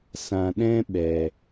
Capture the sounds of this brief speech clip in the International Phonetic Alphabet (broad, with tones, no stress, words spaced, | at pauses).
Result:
sã˨ɗɛ̃˦ɓɛ˨